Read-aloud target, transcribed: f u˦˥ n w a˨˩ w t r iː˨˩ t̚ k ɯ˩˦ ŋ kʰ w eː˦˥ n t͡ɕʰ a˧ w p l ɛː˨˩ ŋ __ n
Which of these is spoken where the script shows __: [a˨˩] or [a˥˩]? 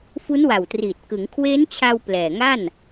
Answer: a˥˩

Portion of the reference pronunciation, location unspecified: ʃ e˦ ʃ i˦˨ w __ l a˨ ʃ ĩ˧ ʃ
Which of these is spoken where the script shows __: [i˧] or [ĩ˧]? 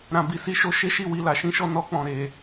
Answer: i˧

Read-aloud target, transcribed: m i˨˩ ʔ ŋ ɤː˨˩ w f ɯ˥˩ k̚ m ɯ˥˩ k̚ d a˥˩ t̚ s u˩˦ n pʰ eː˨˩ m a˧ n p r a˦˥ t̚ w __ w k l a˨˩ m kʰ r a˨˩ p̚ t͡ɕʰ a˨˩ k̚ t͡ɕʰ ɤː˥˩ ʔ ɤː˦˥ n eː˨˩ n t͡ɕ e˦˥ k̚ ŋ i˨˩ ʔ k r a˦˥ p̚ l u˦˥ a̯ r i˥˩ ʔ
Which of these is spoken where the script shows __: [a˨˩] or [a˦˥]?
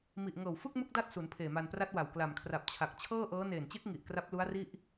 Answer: a˨˩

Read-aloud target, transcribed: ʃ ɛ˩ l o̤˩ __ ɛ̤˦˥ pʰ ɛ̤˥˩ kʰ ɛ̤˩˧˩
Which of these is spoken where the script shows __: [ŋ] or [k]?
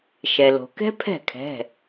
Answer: k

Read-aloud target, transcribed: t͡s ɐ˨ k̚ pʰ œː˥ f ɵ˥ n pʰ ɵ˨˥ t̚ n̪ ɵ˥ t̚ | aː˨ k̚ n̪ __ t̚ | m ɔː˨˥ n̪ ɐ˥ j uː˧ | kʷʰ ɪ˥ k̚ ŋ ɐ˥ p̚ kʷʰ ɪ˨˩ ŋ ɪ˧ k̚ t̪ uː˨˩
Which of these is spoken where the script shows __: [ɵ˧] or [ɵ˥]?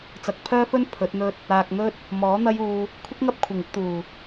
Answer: ɵ˥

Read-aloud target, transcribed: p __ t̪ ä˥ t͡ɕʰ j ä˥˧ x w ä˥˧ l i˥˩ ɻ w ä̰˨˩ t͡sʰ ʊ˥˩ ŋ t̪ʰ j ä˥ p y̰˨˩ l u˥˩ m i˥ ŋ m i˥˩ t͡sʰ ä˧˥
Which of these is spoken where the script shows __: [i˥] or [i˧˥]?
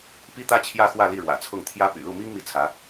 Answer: i˥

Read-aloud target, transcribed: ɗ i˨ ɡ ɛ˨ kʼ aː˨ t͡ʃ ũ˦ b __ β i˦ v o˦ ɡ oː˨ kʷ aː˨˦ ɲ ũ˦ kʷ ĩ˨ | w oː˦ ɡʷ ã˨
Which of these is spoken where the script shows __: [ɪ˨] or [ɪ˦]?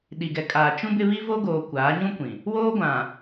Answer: ɪ˦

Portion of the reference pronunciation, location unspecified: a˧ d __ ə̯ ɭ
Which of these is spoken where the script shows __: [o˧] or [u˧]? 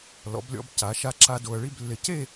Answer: o˧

